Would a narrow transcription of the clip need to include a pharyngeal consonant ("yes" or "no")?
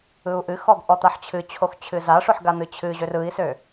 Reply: yes